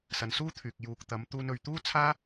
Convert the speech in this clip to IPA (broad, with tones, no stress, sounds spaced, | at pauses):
s ɐ˨˧ n s uː˥ t̪ʰ yː˨ k̚ j uː˨ k̚ t̪ ɐ˨˧ m t̪ uː˧ n ɵ˨ ɥ t̪ uː˥ t͡sʰ aː˥